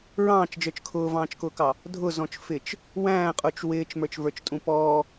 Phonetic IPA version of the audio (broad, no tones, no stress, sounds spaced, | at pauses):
ɹ ɑ̃ː t͡ʃ d͡ʒ ə˞ t͡ʃ kʰ ʊː v ɑ̃ː t͡ʃ k ʊː k ɑ | dʱ ʊ z ɔ̃ t͡ʃ f ɪ t͡ʃ | w æ̃ː qʼ ʊː t͡ʃ w ɪː t͡ʃ m ə˞ t͡ʃ v ə˞ t͡ʃ tʼ ũ p ɔː